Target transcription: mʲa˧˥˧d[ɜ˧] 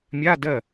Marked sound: incorrect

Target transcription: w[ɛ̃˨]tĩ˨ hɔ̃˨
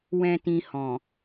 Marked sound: correct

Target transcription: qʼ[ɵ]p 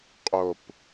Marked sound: incorrect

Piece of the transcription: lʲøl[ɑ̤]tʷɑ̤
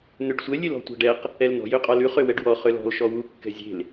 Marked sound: incorrect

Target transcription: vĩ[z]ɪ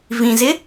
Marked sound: correct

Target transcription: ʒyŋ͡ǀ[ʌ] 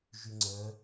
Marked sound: incorrect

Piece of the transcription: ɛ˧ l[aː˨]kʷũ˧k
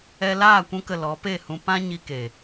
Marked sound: incorrect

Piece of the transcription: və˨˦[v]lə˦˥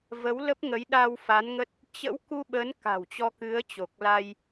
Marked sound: incorrect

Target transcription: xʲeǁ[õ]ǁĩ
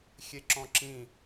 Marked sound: incorrect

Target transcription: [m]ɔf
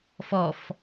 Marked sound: incorrect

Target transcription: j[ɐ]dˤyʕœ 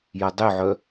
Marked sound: correct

